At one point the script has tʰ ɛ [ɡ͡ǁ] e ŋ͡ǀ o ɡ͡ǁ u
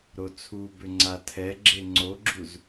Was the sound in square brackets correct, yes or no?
yes